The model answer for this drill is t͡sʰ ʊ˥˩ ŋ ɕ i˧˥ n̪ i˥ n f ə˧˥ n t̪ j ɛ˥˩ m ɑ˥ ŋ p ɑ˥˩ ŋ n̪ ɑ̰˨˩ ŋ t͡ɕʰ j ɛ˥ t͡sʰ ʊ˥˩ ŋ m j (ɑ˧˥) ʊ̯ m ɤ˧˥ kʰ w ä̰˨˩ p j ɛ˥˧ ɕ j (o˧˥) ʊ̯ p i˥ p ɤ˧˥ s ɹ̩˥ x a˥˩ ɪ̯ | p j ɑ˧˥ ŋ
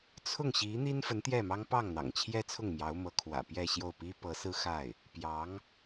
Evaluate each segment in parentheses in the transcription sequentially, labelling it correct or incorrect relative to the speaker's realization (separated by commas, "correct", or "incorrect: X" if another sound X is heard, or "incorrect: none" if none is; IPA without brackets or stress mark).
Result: correct, incorrect: o˥˩